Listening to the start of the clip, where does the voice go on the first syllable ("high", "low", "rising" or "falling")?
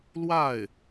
falling